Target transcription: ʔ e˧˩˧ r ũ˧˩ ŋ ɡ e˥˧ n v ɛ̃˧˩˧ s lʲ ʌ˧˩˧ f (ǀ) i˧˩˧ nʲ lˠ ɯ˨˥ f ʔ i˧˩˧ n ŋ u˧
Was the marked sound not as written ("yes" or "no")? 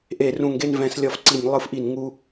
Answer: no